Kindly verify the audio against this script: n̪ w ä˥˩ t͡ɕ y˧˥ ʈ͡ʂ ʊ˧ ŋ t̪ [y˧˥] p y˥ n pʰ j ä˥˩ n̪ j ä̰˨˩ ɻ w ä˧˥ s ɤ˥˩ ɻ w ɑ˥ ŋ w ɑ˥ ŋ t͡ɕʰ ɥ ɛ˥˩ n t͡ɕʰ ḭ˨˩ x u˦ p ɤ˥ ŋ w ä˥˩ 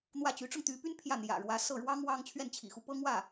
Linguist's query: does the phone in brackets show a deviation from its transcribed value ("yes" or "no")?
no